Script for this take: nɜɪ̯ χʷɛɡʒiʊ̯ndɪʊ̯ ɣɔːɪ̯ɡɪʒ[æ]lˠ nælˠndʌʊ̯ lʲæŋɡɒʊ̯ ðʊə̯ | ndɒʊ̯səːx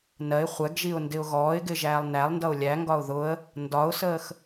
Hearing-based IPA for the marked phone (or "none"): æː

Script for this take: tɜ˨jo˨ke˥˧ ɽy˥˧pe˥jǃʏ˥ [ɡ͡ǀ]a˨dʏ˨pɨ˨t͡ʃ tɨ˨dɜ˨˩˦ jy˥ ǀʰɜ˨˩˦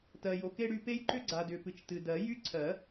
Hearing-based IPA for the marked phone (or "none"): ɡ͡ǀ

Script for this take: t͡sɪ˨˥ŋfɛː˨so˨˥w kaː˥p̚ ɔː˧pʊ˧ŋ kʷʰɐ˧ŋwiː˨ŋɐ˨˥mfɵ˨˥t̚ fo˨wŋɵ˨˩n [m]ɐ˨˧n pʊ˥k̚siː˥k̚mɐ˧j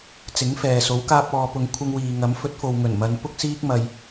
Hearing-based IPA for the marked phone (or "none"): m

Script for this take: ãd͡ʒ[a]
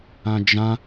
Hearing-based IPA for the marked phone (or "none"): ã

